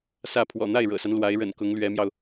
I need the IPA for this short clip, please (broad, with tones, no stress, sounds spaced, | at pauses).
s ä˥˩ pʰ w ɔ̰˨˩ n̪ a˥˩ ɪ̯ ɻ ɤ̰˨˩ s a˦ n l w a˧˥ ɪ̯ ɻ ə̰˨˩ n k ʊ˧˥ ŋ l ɥ ɛ˧˥ m j ɑ˧ ʊ̯